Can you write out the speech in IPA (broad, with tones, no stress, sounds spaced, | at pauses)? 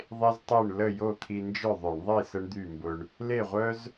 ðˤ e˥ z tˤ e˥˨ ɳ l ə˥˨ j o˥˨ t̪ʰ i˧ n d͡ʒ œ˥˨ ðˤ œ˧˩˧ ɳ ðˤ i˥˨ s ə˥ ɳ d̪ y˥˨ m b ʊ˧ ɳ | l e˥˨ ʁʷ œ˥ z